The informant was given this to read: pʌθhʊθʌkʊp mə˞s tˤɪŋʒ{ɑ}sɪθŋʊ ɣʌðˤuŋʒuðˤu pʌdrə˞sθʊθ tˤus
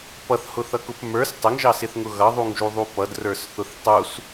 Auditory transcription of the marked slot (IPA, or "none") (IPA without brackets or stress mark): ɑ